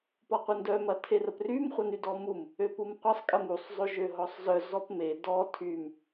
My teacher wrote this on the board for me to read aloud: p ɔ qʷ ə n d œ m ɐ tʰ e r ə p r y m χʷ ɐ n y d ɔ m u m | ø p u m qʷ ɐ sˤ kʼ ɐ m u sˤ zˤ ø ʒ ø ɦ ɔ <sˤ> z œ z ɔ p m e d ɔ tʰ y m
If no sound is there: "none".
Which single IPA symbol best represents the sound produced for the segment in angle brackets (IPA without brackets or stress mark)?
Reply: sˤ